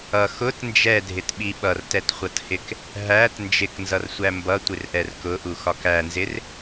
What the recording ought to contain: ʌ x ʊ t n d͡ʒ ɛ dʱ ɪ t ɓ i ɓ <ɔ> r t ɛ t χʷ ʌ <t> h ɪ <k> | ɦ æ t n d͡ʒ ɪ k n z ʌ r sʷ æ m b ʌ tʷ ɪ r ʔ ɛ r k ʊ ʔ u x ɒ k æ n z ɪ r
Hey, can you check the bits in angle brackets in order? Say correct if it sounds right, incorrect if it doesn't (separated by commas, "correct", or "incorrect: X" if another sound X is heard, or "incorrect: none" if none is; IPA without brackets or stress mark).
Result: incorrect: ʌ, correct, correct